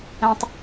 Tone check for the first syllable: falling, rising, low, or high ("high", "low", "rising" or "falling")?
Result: low